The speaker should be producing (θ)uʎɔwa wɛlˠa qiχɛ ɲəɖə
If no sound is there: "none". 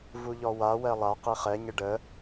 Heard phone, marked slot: v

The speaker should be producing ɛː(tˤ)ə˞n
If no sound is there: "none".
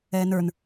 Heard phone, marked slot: n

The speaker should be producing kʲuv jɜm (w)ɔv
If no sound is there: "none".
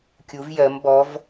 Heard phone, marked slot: b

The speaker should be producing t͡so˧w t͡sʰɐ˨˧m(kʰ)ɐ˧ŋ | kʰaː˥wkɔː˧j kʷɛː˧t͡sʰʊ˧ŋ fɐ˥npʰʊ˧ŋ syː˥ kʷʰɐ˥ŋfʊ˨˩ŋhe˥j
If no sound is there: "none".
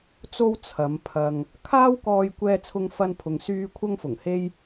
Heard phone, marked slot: pʰ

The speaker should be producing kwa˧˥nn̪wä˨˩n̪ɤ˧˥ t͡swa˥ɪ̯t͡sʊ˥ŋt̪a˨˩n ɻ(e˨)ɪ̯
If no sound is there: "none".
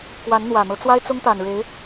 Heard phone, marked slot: e˧˥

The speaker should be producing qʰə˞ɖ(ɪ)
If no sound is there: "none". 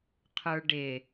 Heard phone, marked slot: ɪ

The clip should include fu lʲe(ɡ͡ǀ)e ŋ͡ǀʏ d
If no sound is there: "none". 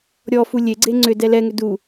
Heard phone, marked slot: ɡ͡ǀ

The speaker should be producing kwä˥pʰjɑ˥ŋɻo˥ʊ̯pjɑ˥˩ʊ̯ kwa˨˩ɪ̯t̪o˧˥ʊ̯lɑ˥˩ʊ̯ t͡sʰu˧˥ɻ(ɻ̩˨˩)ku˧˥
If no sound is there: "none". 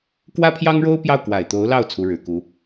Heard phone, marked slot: ɻ̩˨˩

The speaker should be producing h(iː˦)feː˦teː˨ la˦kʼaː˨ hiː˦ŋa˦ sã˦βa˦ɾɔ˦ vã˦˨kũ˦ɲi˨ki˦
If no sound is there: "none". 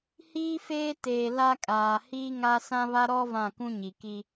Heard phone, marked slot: iː˦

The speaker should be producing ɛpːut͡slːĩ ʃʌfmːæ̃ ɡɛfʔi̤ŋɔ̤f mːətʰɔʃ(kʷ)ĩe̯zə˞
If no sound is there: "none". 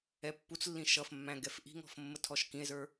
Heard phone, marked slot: k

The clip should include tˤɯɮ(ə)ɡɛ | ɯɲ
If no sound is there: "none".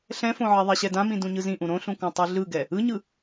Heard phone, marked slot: ɯ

